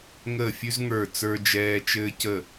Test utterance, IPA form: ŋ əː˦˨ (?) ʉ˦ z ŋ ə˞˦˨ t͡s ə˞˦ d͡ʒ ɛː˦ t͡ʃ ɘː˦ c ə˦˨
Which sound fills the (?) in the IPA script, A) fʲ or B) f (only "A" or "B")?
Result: A